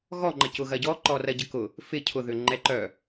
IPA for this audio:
ɣ ɔ ŋ͡ǃ ə c ʊ ɣ ɐ ɟ ɔ ǃ ɔ r ɐ ɟ ə k ʊ | f ɪ cʰ ʊ ð ʏ ŋ͡ǃ ɛ ǃ œ

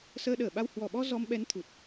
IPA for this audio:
s əː˧ ɗ əː˨˩ ɓ a˧ w h w ɔ˨˩ ɓ ɔ˧ z ɔ˧ m ɓ ɛ˨˦ n t̪ʰ u˨˩ t̚

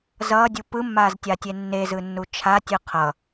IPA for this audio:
z ʌː dʲ u p ɯ mː aː z tʲ a tʲ e nː e z ɯ nː u t͡ʃʰ a tʲ ɯ qʰ ʌ

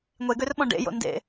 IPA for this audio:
ŋʷ e ɡ ø r ɓ ɔ̃ ɖ ḛ j o̰ n d ḛ

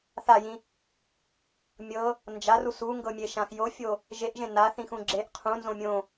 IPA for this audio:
θ a j ĩ | mʲ ɤ | n d͡ʒ a r u s u ŋ ɡ ɤ mʲ e ʃ ã x j o fʲ o | ʒ e ʔ ʒ ẽ n a θ ĩ x ũ ɡ͡ǁ e ʔ qʰ ũ n z õ mʲ õ

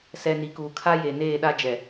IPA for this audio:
s ɛ˨ n i˨ k uː˨ kʰ a˦ j e˨ n eː˦˨ ɗ a˦ d͡ʒ ɛ˨

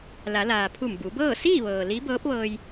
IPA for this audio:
l a˩˧ l aː˩ pʰ u˧˩ m b u˩˧ b ɤː˥˨ s iː˥˨ ʋ ɤː˩ l i˧˥ b ɤː˧˥ p̚ ʋ ɤː˧ j

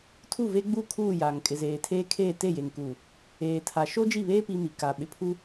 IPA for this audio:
tʰ u˦˨ v e˦ ɡ͡b u˦˨ kʰ uː˦˨ j a˨ ŋ kʼ ɪ˨ z eː˨ tʰ eː˦ kʰ eː˦˨ t e˦˨ j e˨ ŋ k uː˨ | eː˨ tʰ a˨ ʃ o˦ d͡ʒ i˦˨ β eː˦ p i˦ m i˨ k a˨ ɓ ɪ˨ pʰ u˦

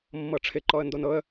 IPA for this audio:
mː ɤ ʈ͡ʂʰ ɪ ǃ ɔ ə̯ n d o n ɤ ə̯

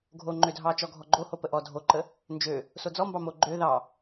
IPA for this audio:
ɡʱ o ŋ͡ǃ ø dʱ ɑ t͡ʃ ɔ ɡʱ ɔ ɡ͡ǃ o h o p ə ʔ ɔ dʱ o ǃ ə | n d͡ʒ ø | s o d͡z ɔ m b ɑ m o ɡ͡ǃ ø ð ɑ

